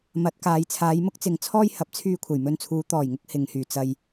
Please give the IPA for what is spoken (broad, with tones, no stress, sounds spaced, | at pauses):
m ɐ˨˥ t̚ k aː˨˧ j t͡sʰ aː˨˧ j m ʊ˥ k̚ t͡s ɪ˨ ŋ t͡sʰ ɔː˥ j h ɐ˨˥ p̚ t͡sʰ yː˧ kʷʰ ɐ˨˩ j m ɵ˧ n t͡sʰ uː˨˧ t̪ ɔː˨˩ j ŋ ʊ˧ k̚ h ɪ˨ ŋ h yː˨˩ t͡s ɐ˧ j